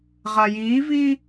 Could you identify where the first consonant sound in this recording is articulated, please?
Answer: uvular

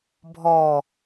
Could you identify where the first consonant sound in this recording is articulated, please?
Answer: labial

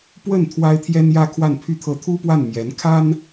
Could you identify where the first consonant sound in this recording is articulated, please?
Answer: labial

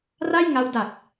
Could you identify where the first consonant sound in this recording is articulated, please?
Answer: alveolar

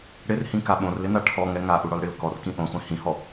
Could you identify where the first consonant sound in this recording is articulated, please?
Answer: retroflex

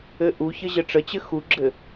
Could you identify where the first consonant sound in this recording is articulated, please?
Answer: glottal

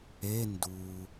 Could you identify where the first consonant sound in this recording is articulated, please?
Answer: alveolar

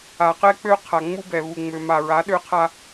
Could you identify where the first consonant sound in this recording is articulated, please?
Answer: uvular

